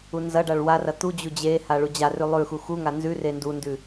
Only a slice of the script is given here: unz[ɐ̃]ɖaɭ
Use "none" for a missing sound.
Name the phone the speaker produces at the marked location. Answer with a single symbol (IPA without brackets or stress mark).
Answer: ɐ